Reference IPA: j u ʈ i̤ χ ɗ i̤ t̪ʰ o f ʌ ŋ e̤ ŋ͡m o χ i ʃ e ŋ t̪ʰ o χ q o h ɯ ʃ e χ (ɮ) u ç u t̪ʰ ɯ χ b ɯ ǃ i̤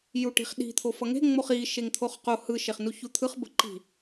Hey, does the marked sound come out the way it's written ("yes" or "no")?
no